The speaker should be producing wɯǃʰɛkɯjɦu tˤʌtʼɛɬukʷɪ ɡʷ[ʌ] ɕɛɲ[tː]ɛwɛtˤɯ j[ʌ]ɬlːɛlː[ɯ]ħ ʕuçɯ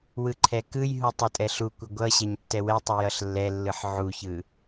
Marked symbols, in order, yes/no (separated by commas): yes, yes, yes, yes